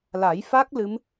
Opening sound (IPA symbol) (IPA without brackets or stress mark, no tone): l